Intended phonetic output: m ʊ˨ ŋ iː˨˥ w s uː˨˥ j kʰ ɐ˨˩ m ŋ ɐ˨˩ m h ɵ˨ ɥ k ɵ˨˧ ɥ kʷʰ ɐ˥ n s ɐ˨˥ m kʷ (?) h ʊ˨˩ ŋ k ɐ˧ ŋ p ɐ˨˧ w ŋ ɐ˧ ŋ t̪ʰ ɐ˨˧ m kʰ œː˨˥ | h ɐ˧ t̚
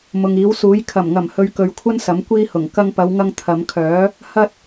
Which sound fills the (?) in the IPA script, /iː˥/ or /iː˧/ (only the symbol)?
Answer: iː˧